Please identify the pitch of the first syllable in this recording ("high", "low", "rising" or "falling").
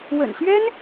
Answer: low